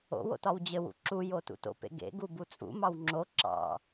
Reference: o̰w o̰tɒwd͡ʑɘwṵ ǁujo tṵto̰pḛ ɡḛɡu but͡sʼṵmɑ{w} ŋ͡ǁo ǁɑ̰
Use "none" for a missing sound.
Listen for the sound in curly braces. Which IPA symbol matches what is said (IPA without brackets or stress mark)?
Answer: w